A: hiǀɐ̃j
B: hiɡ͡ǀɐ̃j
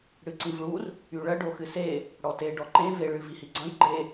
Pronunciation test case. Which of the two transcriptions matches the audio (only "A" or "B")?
B